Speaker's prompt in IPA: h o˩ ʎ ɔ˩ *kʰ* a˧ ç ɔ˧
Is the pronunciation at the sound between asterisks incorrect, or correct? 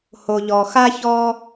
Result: incorrect